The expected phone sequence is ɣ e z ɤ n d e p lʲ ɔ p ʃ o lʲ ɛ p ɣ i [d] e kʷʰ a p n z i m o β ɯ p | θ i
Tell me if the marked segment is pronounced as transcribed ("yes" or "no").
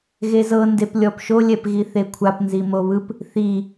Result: no